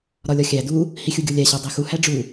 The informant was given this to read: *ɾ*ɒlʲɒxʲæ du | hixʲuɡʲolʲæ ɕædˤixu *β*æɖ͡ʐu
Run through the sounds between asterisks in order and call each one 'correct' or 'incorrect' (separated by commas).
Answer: correct, incorrect